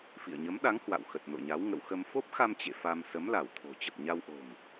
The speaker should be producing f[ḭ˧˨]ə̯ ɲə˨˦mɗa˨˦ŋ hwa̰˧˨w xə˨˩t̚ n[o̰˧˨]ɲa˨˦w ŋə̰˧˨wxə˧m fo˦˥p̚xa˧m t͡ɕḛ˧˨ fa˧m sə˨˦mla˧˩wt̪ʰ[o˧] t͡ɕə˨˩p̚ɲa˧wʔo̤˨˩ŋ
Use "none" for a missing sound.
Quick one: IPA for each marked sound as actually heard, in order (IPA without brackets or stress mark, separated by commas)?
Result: ḭ˧˨, o̰˧˨, o̤˨˩